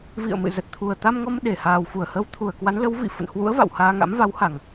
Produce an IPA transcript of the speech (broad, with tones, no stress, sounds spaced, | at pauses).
v ḭ˧˨ ə̯ m ɨ̰˧˨ z ə˨˩ t̚ t̪ʰ u˨˩ ə̯ t̪ a˧ m ŋ ɔ˧ m ɗ e˧˩ h aː˨˩ w f u˧˩ ə̯ h ə˨˦ w t̪ʰ u˨˩ ə̯ k w a˨˦ n l ə˨˦ w v ḭ˧˨ f ə̰˧˨ n h w ṵ˧˥ ə̯ v a̰˧˨ w h aː˧ ŋ a̰˧˥ m v a˨˦ w h a˨˩ ŋ